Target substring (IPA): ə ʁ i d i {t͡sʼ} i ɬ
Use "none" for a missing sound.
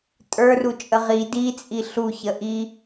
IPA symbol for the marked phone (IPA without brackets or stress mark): t͡sʼ